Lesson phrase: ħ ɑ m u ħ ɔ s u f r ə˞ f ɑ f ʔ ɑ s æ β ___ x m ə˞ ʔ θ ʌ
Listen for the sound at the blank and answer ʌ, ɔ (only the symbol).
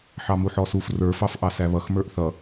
ʌ